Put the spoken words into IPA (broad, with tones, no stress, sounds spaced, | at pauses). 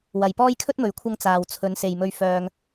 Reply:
w ɐ˨ j p ɔː˥ j kʰ ɵ˥ t̚ m ɵ˨˥ ɥ kʷʰ ɐ˧ ŋ t͡s aː˨ w t͡sʰ ɵ˨˧ n s e˨ j m ɵ˧ ɥ f œː˧ ŋ